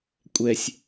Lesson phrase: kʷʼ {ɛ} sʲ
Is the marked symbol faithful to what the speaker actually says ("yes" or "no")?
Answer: yes